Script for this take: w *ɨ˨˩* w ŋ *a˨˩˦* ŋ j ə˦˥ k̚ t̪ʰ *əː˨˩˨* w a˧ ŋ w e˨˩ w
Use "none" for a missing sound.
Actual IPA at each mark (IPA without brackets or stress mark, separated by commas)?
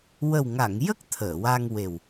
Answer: ə˨˩, a˨˩˨, əː˨˩˨